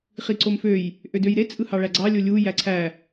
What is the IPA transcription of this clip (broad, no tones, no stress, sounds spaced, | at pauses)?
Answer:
χ i ǀ o m f ø j | ʔ ø d ø j ɾ e t͡sʼ ɯ h ɑ ɭ æ ɡ͡ǀ ɑ lʲ o lʲ u j æ ǀʰ æ